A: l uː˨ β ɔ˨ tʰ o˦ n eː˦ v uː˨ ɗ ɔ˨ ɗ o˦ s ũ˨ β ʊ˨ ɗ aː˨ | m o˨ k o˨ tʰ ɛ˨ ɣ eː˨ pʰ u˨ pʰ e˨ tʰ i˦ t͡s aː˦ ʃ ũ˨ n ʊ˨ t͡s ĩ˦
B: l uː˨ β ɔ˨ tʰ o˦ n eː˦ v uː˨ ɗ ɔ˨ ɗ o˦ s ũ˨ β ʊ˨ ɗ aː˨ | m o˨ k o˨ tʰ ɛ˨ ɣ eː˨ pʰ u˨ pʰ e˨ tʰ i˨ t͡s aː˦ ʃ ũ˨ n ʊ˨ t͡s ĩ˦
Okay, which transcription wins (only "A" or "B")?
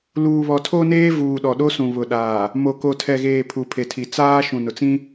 B